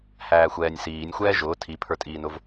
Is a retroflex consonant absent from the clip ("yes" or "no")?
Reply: yes